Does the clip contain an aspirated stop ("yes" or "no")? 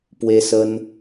no